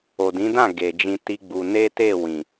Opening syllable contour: low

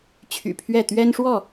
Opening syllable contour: low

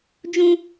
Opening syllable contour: high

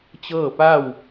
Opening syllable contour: falling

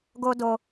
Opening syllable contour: high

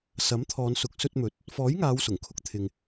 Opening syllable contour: rising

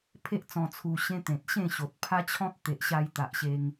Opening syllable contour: high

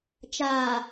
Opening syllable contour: low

